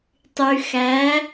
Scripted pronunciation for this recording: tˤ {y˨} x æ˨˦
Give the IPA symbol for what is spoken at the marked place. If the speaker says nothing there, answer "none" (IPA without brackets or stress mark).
y˨